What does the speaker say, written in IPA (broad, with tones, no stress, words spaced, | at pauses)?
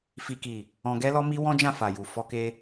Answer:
fi˨ki˨ | ɔ̃˧ɡɛ˦ lɔ˦mi˦wɔ̃˦d͡ʒã˦˨ fa˨ ju˨ fɔ˧ke˧